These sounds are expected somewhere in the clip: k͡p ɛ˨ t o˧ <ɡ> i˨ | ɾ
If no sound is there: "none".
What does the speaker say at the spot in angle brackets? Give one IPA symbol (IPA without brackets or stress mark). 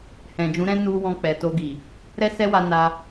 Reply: ɡ